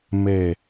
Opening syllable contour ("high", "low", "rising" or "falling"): low